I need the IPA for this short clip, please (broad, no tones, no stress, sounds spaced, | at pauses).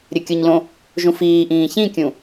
ɾʲ ɘ kʲ ʊ ɲ l õ | ʒ ũ f iː ʔ ĩː ç ĩ kʲ ũ